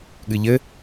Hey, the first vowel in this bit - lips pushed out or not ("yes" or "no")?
no